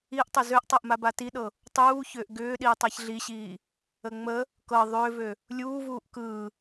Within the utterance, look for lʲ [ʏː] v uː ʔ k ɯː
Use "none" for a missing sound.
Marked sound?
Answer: uː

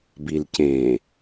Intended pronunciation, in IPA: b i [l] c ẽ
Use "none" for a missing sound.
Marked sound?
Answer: l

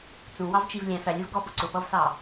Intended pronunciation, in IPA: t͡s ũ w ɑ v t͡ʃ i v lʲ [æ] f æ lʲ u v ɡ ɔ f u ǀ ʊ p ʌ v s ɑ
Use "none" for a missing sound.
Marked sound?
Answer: æ̃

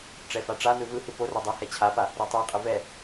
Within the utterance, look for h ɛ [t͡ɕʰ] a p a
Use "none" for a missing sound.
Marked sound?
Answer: t͡ɕʰ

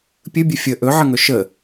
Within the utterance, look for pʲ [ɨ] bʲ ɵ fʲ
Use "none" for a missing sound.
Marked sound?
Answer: ɨ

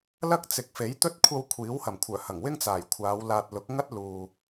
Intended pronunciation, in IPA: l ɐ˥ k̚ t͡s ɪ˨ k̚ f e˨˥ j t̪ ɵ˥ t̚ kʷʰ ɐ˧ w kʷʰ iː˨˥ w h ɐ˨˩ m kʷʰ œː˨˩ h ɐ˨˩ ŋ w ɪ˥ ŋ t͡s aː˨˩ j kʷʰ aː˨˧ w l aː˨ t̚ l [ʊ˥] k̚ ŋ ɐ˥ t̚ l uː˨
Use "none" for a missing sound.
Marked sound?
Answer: ʊ˨˥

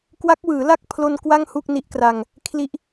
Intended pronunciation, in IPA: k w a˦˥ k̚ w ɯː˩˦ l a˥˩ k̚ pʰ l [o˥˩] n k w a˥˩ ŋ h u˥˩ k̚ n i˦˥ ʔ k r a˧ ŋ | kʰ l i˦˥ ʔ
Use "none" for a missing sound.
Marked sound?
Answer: o˧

